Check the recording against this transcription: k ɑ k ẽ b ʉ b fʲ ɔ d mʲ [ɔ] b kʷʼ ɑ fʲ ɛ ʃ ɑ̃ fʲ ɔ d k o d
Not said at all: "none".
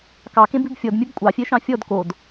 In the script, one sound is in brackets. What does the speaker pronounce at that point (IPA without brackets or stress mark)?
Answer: ɵ